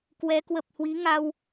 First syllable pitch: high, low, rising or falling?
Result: rising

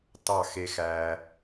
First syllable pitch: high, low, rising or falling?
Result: falling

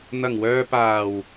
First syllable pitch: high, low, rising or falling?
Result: low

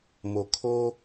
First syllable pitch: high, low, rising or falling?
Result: low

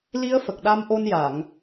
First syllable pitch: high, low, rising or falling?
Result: rising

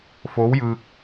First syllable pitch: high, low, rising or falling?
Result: rising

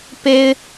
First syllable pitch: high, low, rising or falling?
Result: high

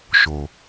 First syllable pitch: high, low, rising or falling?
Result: low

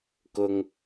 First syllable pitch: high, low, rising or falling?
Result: low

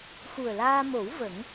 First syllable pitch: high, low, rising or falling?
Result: low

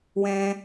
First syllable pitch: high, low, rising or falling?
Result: high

